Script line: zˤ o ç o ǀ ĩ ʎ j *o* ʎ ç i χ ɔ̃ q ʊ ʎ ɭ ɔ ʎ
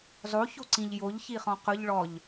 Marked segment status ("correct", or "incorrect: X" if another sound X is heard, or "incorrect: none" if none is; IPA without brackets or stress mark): correct